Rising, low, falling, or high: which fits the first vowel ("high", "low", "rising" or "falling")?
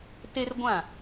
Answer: high